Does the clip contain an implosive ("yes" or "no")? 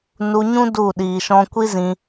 yes